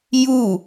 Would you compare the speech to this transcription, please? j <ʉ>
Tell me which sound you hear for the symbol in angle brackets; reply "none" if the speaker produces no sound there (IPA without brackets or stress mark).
u